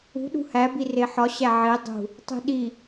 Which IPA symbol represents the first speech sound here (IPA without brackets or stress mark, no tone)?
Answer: ṳ